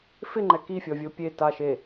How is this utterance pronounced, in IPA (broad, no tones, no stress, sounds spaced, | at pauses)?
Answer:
f ɪ ŋ͡ǃ ɛ k i fʲ ɔ vʲ o pʲ e t a ʃ e